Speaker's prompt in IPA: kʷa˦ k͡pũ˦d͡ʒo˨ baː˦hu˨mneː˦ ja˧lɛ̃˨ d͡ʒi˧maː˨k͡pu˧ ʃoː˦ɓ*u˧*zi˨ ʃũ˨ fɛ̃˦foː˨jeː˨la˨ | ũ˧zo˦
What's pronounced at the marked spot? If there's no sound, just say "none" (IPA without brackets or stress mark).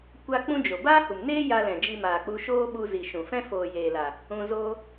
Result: u˧